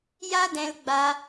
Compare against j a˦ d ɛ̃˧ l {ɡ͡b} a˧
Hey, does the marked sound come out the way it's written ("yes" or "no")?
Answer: yes